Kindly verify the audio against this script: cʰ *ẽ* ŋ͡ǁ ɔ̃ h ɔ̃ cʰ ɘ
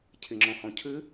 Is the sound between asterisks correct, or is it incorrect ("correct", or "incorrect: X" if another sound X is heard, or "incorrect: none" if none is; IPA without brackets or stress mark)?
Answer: incorrect: e